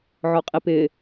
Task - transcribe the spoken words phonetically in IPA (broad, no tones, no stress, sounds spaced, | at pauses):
ʕ ɔ qʼ i p ɪ